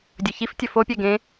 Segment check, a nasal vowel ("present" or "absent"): present